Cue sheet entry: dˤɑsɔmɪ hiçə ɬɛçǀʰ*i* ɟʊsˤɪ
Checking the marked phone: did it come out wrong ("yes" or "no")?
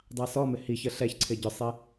yes